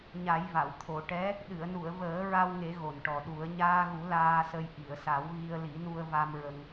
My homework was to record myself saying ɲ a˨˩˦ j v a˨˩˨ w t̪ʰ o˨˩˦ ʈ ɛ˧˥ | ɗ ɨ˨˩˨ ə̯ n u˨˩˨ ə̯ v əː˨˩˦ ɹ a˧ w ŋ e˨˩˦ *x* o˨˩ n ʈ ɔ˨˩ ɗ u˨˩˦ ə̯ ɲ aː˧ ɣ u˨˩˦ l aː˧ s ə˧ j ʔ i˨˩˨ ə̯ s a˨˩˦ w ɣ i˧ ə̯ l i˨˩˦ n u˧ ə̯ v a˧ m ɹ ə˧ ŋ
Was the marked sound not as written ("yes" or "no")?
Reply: yes